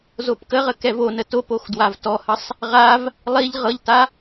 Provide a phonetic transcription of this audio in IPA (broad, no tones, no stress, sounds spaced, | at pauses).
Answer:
z o p k ə ʁ ə k ɛ v o n ə t o p o x d w a v t ɔ h ə sˤ | ʁ a v | lˠ i ʎ ʁ ɤ ʎ t a